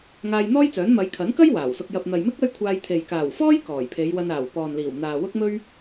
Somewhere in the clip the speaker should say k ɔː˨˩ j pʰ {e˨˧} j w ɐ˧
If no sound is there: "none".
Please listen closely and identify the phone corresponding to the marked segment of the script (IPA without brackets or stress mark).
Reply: e˨˧